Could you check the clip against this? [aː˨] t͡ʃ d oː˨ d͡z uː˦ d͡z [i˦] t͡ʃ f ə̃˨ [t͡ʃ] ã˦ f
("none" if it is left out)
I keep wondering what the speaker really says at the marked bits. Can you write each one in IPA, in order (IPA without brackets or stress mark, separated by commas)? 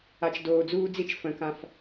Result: a˨, i˦, k